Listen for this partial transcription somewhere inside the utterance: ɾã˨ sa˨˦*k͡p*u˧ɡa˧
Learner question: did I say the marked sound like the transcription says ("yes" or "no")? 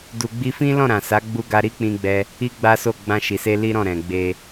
no